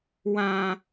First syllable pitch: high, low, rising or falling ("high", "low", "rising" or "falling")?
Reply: high